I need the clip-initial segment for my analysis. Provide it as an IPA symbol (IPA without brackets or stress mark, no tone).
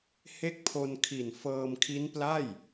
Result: h